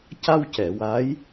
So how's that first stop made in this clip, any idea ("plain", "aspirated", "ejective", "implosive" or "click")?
plain